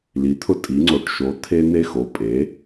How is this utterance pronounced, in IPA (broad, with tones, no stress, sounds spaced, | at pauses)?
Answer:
l i˩˧ t̪ʰ ʊ˧ tʼ i˩˧ ŋ͡ǀ o˩˧ ʈ ʃ o˩˧ t̪ʰ e˧ n̪ e˧ x o˩˧ pʼ e˩˧